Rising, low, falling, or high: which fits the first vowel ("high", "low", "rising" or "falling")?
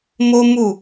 high